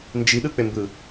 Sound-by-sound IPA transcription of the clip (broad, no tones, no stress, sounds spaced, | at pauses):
n d͡ʒ i ɗ ɯ k͡p e m b ɯ